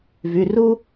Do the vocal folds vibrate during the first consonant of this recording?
yes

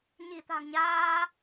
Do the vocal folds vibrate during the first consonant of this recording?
yes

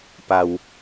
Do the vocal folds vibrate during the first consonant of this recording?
no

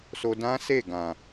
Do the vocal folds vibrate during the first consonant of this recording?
no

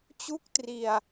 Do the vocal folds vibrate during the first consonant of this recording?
no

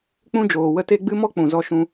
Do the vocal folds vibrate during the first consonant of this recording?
no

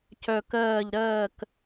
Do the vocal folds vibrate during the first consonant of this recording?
no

